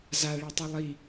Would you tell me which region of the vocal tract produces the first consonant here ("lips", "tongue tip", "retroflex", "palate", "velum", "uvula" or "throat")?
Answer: tongue tip